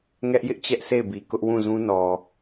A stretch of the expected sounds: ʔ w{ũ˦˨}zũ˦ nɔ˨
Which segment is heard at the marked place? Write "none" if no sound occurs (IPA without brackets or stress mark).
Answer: ũ˦˨